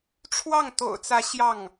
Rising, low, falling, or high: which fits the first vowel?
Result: falling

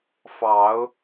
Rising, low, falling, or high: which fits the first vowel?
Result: rising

